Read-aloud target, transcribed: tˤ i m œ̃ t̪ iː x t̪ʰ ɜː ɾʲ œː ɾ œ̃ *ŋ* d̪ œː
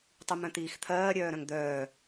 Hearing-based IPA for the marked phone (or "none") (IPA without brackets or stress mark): ŋ